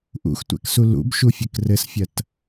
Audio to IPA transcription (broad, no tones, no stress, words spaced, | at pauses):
ʔṵxtʷɛ̰ksu lṵbʃufʲɘk rɘsfʲɐt